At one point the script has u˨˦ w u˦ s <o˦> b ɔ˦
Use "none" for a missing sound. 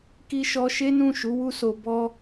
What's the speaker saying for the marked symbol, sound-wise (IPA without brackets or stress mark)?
o˧